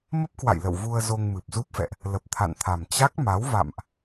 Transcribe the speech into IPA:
mə˦˥p̚kwa̰˧˨jlə̰˧˨w vu˧ə̯zo˧ŋ mɨ˨˩p̚zu˦˥p̚fɛ̰˧˨ʔ | lə˨˩p̚t̪ʰa̰˧˨nt̪ʰa˨˩m t͡ɕa˦˥k̚ma˨˦w va̰˧˨mʔ

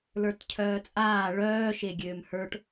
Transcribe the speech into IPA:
lə˞tcʰœːt͡sʼaː ɭœːʃe ɡʲøːmhə˞ʈ

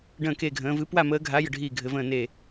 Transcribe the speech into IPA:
ɖə̃ː˧˩ke˧˩ɡʱə̃ː˩˧ vɨ˩˧pwa˧˩məː˩˧ ɡʱa˩˧ jə˧˩ɖʱiː˧˩ɡʱɘ˩˧və̃ː˧˩ neː˧˩

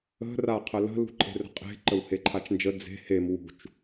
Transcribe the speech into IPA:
ə̤ raqʰələ̤ lṳǃʼe̤rə̤qʼe̤ ǃəwheǃʰat͡ʃnd͡ʒə d͡ze̤ hem wṳt͡ʃ

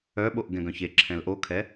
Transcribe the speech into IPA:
œɓoʔ ɡɛ̃ɡœ̃çe ǁʰɛ̃lʔokʰɛ

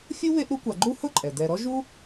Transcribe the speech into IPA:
fʲu˥βe˦ʔɾu˦kʷa˨ ɡ͡ǃu˥hʊ˥ǃʼɛ˩ dɛ˨ɾɔ˥ ʒu˥

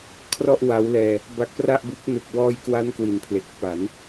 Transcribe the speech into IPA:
kʰrɔ˥˩ʔwa˦˥wlɛː˧ | ba˦˥k̚pra˥˩ʔbu˦˥k̚ nɯ˨˩k̚wɔː˧jkwa˦˥n kwi˨˩npʰle˨˩k̚ pa˩˦n

